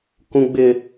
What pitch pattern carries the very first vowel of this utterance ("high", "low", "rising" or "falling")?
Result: high